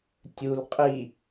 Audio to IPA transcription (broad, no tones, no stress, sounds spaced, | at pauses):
tʲ u l qʼ i